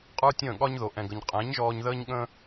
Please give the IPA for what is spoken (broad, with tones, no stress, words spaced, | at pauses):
qʼə˞˦tʲə̃ː˦˨ɠɒ˦ɲ ðo˨ʔɛ̃˨ɡə˨ɲ qʼɛ̃˨˦ɲʒɔː˧ɲðəː˦ɲɠə̃˦